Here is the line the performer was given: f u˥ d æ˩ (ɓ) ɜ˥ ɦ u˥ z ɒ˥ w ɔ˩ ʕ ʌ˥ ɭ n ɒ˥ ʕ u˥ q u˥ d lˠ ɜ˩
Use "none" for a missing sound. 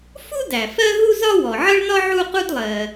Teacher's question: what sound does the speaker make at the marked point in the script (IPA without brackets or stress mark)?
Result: f